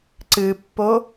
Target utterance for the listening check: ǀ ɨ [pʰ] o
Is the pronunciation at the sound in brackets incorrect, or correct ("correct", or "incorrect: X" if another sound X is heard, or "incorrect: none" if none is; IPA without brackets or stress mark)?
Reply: incorrect: pː